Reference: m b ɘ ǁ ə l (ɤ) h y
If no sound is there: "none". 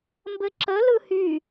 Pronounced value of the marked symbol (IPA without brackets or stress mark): ɯ